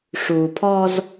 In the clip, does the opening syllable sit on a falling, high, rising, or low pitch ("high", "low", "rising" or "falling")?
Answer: low